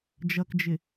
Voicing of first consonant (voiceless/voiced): voiced